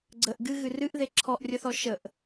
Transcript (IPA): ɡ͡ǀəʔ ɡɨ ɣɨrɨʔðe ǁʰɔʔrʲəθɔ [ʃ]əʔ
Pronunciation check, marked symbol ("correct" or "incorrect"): correct